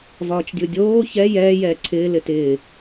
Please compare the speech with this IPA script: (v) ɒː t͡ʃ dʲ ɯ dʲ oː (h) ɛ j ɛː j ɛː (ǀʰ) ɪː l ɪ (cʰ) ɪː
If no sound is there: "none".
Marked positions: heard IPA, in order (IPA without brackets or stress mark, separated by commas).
v, ç, ǀʰ, t